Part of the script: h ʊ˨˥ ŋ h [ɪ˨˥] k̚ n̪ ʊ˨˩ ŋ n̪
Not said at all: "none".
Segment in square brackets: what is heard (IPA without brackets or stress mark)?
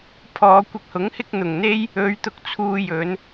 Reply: ɪ˥